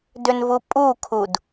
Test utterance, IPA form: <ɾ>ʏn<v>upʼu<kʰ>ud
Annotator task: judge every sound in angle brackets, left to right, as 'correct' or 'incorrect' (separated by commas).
incorrect, correct, correct